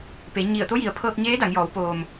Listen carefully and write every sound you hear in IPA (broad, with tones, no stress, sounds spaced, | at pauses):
p e˩˧ ɲ i˧˩ ə̯ t̪ o˧˥ j i˩ ə̯ pʰ ɤː˧ k̚ ɲ eː˧˥ d a˩˧ ŋ j ɔː˩˧ w p oː˩ m